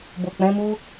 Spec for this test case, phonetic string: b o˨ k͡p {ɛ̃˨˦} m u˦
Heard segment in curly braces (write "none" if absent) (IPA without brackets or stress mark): ɛ̃˨˦